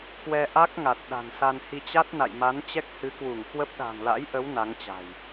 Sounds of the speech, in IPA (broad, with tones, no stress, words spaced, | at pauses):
kwɛ˧ʔa˦˥k̚ŋa˨˩t̚ ɗa̤˨˩nsa˧nhi˧ t͡ɕa˦˥t̚na̰˧˨jma˨˦n t͡ɕɛ˦˥k̚hɨ˨˦kwu˧˩ŋ kwə˦˥p̚ ɗa̤˨˩ŋla̰˧˥jʔə˨˦w na˨˦ŋt͡ɕa̤˨˩j